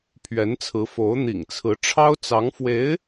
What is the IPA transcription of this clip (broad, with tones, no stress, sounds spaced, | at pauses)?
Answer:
pʰ ɥ ɛ˧˥ n t͡sʰ ɹ̩˧˥ f o˧˥ ʊ̯ n̪ ḭ˨˩ ŋ t͡sʰ ɹ̩˧˥ ʈ͡ʂʰ ɑ˥ ʊ̯ t͡s ɑ˧˥ ŋ f w e˧˥ ɪ̯